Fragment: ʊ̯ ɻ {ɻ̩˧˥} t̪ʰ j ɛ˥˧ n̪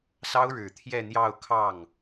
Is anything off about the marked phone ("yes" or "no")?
yes